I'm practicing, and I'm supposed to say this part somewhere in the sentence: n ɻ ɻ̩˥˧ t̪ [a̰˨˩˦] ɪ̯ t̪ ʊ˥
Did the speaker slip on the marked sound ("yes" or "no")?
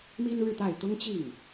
yes